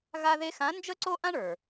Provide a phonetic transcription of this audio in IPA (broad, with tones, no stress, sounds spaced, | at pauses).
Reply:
ɣ a˥ ð e˥ x ã˧˥ n d͡ʒ ə˥ ǀ o˥ ʔ ã˥ ɳ ə˞˩